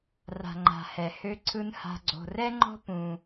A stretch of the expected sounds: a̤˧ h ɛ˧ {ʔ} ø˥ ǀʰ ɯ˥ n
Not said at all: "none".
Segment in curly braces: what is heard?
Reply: h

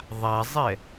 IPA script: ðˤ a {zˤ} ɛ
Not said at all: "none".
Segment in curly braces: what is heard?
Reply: zˤ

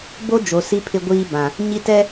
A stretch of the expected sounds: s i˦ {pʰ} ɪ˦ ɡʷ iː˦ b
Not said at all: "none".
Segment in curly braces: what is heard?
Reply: pʰ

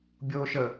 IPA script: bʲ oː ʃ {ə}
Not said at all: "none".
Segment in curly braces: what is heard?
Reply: ə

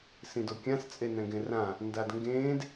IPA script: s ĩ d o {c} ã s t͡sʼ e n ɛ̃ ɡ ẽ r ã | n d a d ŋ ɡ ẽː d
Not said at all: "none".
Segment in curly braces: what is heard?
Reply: kʲ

